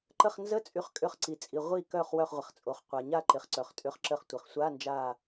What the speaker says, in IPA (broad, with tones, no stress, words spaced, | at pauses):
ǃə˧˩χnzə˧˥˧t͡sʼy˩˥χ kʼʏ˧˩χǀi˩t͡sʼi˩ ʁʷi˧˩kœ˧˩χ wœ˧˩χʁʷɪ˩χt͡sʼo˩χqʷa˩ ɲa˧˩ ǃɪ˩χǀœ˩χ tʼʏ˩˥χǁə˧˩χ tʷɪ˩χsʷa˧˥˧nd͡ʒa˧˩